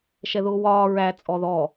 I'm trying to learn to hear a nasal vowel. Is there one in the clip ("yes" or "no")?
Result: no